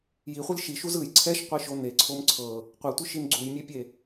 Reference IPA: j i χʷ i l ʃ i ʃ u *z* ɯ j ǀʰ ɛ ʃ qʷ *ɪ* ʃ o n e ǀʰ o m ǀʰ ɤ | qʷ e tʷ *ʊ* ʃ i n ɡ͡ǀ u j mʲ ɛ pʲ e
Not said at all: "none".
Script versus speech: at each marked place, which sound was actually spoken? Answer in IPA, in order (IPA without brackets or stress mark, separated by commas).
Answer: z, i, ɯ